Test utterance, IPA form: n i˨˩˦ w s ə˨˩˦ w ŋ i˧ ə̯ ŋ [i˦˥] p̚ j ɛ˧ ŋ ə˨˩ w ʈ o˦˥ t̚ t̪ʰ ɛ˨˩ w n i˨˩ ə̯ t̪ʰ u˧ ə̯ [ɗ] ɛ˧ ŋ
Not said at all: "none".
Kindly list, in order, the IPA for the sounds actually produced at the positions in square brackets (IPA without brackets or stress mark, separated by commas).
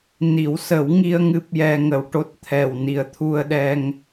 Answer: ɨ˦˥, ɗ